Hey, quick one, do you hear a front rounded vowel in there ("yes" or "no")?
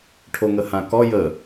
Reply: no